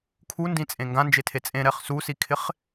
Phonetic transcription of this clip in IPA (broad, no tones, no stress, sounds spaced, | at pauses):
kʰ u n d ĩ t͡sʼ ẽ ŋ ɡ ã n d͡ʒ e tʰ e t͡sʼ ẽ ɾ ɛ χ s u s i kʰ ɪ χ